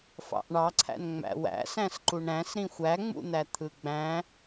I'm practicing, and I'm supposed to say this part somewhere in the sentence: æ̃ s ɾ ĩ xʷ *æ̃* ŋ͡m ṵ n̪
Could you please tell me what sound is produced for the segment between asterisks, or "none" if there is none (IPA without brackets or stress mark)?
æ